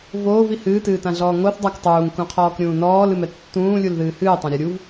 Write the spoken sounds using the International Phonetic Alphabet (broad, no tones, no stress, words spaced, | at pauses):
voːvi hɨːtɨːtãɮɔː ŋoθ dˤak tˤuːŋkũqʰɔːkɾʲũː nɔːlɨmɛ tːũːlʲulðɨː hɨːtˤãɾʲɔ ɾʲuv